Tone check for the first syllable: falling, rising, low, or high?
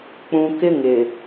low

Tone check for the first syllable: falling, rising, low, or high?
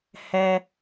high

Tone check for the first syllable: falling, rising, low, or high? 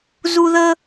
high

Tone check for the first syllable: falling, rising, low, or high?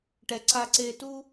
high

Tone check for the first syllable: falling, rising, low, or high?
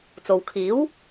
low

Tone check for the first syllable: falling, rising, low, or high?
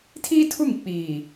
high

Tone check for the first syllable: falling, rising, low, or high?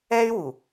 high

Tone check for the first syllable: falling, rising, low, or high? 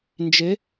rising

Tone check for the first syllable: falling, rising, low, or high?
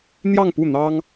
falling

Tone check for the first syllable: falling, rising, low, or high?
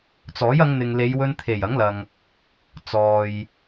rising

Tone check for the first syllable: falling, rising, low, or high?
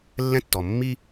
high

